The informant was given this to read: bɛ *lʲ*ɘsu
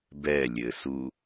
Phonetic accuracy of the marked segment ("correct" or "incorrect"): correct